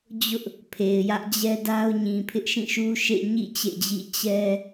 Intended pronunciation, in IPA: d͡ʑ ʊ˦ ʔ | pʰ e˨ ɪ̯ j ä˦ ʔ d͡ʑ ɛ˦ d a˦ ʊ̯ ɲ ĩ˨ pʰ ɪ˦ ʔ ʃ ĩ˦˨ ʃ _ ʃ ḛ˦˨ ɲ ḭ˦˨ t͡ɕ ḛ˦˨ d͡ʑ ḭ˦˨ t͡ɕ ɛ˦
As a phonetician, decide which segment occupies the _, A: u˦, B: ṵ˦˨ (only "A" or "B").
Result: A